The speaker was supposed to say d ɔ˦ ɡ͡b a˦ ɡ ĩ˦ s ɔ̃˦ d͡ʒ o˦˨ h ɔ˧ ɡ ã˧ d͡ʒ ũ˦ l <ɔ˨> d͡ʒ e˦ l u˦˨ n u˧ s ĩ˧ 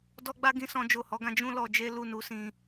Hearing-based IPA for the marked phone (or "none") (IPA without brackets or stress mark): ɔ˧